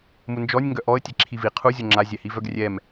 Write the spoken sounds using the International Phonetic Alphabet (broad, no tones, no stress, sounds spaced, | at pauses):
m u n d͡ʒ ɔ nʲ ŋ ɡ œ ʔ ɔ ə̯ tʲ ɛ ǁʰ i v i qʰ u zʲ o ŋ͡ǁ a zʲ ɛ h i v œ ɡ rʲ ɛ m